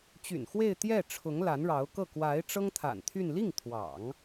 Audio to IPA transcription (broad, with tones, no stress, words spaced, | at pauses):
t͡ɕy̰˨˩nxwe˥˧ɪ̯t̪jɛ˥˩ʈ͡ʂʰʊ˧˥ŋ la˧˥nɻɑ˧˥ʊ̯kɤ˥˩ kwa˧˥ɪ̯ ʈ͡ʂɤ˥ŋt̪ʰa̰˨˩nt̪ʰy˥˧n li˥˩ŋt̪ʰwɑ̰˨˩˦ŋ